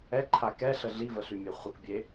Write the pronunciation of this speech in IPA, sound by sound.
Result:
ɛǃʰa kɛɬə ɮivəɬymʲe χʷəkbʲe

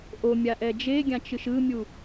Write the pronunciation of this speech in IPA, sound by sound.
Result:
ʔomʲaʔɛ d͡ʒeɡʲãt͡ʃɯʃ ɯmʲu

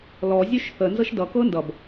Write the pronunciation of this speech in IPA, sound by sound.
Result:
lɔ zʲøʃθə nzɤʃdʌ kɤndʌb

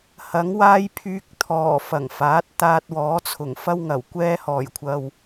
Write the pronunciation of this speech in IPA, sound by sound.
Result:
hɐ˨˥ŋwaː˥jpʰyː˧k̚t̪ʰɔː˨˩ fɐ˨˩ŋfaː˨˥t̚ t̪aː˧t̚wɔː˨˥t͡sʰʊ˨˩ŋ fɐ˥wŋɐ˨˩wkʷɛː˥ hɔː˨˩jkʷʰɐ˨w

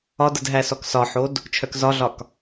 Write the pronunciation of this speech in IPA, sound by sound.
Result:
ɒdədɦæsɔk sɒħod | t͡ʃʰœkzɒɮɒk

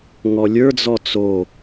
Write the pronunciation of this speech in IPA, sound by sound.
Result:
ŋɔlʲə˞d͡zɔ t͡so

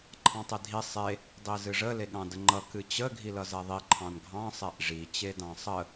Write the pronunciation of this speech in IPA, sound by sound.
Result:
ǃʰɑ̃tˤedʱi sˤe | dˤizɨʐə leɠɑ̃dəŋ͡ǃʌ kɨt͡ɕə ɡʱilʌzɛðˤi ǃʰɑ̃nɡʱɑ̃ sˤɛʔʐi t͡ɕedɑ̃sˤə

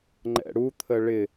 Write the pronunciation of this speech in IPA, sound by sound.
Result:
ŋ͡ǃɛ̰ɽut̪ʰə ɭɪ

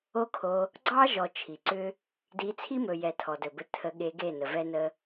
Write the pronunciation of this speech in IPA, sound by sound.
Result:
o˦kʰo˧ | ɡ͡ǀɑ˦ʒɔ˨ t͡ʃʰi˨ǀʏ˦ | di˧ t͡sʰi˦mɵ˨jɛ˨ tʰɔ˨dɵ˨bɘ˧ tʰə˧ɠe˧ɡe˦˨nə˨ vɛ˦nə˦

